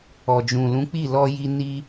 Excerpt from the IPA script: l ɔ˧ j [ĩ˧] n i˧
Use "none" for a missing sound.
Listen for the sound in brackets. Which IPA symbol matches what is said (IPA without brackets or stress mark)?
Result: i˧